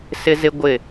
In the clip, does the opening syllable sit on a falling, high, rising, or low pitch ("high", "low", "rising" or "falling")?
high